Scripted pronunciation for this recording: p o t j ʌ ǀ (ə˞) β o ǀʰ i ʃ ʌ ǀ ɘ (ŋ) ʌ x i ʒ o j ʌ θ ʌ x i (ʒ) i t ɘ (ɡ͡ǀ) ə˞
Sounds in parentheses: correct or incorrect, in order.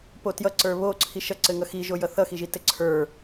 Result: correct, correct, correct, incorrect

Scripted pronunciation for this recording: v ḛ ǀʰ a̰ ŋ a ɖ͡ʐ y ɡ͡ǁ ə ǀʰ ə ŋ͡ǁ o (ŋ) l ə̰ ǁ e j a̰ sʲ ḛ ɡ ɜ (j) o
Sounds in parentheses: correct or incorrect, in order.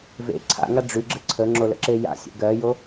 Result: incorrect, correct

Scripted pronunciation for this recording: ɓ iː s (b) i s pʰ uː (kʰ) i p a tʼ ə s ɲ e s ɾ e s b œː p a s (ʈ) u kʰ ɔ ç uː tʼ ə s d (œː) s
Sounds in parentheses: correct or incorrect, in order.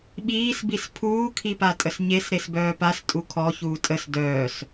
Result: correct, correct, incorrect, correct

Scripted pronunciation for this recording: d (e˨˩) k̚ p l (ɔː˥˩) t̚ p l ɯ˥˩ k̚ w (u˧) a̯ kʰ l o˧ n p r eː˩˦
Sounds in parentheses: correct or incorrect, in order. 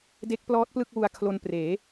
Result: incorrect, incorrect, correct

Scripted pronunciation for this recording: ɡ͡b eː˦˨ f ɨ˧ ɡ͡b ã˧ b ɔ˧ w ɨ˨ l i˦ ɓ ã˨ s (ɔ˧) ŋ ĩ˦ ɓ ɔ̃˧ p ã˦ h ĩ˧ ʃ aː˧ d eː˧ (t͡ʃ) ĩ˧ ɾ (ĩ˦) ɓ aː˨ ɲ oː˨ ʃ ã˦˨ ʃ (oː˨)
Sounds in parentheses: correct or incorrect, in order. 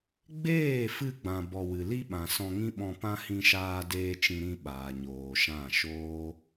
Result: incorrect, correct, incorrect, incorrect

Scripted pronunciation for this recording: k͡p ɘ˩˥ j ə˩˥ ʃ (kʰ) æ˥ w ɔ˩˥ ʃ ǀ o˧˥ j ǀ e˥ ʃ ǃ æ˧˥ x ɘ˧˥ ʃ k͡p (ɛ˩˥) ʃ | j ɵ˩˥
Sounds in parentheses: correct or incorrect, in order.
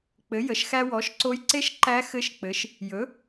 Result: incorrect, incorrect

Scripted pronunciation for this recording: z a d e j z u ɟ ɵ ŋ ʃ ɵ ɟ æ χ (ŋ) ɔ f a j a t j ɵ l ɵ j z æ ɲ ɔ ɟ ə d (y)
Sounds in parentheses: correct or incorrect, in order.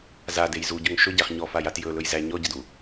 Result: incorrect, incorrect

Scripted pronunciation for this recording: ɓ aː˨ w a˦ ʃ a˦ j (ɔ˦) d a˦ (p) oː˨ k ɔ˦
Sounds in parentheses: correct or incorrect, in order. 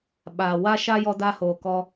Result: correct, incorrect

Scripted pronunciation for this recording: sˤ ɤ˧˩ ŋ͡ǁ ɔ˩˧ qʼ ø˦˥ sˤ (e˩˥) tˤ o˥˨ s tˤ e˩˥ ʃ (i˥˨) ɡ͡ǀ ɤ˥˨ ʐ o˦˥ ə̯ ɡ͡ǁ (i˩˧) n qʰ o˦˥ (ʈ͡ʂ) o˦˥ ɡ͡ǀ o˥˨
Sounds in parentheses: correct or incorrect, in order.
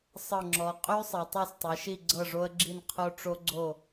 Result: incorrect, correct, incorrect, correct

